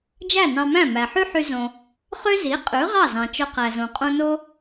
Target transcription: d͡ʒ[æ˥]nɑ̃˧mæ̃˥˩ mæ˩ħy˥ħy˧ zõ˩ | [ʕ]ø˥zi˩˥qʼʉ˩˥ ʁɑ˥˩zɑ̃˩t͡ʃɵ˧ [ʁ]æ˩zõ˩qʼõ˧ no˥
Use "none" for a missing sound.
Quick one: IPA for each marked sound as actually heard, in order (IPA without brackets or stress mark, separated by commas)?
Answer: æ˥˩, χ, q